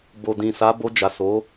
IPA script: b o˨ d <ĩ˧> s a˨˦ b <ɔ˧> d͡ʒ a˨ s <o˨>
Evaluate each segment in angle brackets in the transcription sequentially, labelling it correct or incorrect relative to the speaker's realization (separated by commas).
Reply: incorrect, incorrect, incorrect